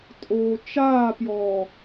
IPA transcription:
tʼ oː t͡ʃ aː p j ɔː

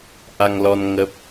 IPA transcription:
ʔ a˧ ŋ l ɔ˧ n ŋ ə˦˥ p̚

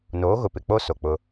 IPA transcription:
n oː˨˦ ɣ ʊ˨ p ɪ˨ k͡p o˦ s o˨ k͡p ʊ˦

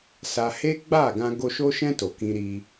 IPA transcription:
s a˧ h e˦ ɡ͡b a˦˨ ɡ ã˧ ɡ o˧ ʃ o˧ ʃ ɛ̃˧ t o˨ k ĩ˧ ɾ i˧

